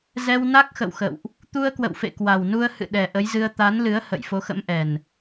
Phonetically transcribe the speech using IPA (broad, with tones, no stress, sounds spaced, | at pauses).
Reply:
z ɛ˧ w n a˦˥ k̚ x ə̰˧˨ w x ə̰˧˨ w ʔ | t̪ u˧ ə̯ k w ə̰˧˨ w f ḛ˧˨ k w a˨˩ w n u˧ ə̯ h ɨ̰˧˨ ɗ ɛ˨˩ ʔ ə˨˦ j z ɨ˧ ə̯ t̪ a˨˦ n l ɨ˨˦ ə̯ h ə̰˧˨ j f o˨˦ x ə̰˧˥ m ʔ ɛ˨˩ n